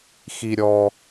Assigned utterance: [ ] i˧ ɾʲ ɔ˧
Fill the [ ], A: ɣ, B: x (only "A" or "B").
B